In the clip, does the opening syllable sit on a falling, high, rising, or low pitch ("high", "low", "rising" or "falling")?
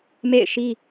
falling